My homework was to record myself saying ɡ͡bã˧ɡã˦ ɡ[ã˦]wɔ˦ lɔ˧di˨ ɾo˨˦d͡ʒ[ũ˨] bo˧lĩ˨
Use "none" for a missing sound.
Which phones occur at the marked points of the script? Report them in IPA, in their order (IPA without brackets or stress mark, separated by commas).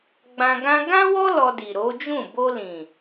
ã˦, ũ˦˨